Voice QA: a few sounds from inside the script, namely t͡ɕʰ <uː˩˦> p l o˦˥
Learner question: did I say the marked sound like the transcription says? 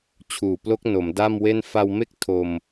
no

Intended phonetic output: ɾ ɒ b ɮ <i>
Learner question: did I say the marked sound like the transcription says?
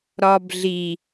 yes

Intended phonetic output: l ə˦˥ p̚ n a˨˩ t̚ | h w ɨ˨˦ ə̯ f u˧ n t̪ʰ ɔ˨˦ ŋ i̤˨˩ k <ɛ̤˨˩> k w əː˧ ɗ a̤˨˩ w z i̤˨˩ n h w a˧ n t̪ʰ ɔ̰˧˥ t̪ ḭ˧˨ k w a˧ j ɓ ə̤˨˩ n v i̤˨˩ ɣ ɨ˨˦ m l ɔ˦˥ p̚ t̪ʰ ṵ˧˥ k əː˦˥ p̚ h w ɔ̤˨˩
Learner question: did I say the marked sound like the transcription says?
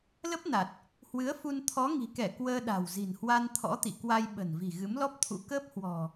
no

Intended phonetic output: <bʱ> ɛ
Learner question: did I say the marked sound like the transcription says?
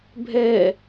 yes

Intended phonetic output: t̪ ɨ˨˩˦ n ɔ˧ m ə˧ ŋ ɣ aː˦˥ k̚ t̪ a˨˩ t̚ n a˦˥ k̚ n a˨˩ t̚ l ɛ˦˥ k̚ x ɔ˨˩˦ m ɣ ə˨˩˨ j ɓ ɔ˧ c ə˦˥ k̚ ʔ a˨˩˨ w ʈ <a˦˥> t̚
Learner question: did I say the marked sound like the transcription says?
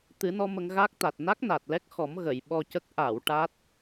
yes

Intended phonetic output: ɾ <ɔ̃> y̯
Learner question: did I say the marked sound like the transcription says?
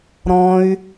yes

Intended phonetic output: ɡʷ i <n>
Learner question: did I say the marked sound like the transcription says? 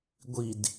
no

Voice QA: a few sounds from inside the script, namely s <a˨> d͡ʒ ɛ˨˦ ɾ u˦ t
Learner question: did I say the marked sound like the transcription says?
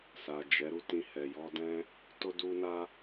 yes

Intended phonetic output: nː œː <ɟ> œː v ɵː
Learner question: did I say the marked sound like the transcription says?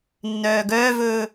no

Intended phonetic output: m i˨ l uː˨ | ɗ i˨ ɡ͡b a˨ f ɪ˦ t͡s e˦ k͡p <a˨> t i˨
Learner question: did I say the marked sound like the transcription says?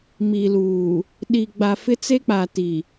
yes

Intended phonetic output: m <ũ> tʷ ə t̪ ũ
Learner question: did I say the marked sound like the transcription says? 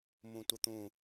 yes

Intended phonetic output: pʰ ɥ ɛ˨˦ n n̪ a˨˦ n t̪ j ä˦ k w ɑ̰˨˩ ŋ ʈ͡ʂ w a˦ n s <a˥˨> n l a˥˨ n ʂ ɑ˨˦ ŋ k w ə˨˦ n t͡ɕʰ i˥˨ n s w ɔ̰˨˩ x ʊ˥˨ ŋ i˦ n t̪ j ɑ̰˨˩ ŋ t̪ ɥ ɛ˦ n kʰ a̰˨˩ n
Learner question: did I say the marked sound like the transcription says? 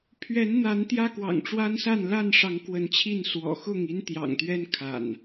yes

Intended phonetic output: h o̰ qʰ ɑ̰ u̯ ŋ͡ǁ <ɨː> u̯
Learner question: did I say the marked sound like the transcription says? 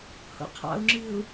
yes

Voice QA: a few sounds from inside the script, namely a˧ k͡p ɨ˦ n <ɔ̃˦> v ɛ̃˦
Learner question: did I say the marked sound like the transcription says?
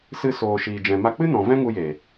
no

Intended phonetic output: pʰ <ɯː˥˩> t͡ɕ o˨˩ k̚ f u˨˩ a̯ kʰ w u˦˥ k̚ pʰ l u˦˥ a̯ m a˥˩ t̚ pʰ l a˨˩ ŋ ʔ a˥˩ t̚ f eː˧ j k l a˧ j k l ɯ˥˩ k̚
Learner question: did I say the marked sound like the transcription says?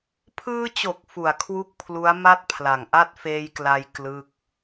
no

